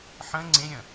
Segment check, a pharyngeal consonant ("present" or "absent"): present